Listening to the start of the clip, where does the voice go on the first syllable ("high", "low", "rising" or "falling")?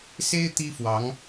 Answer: high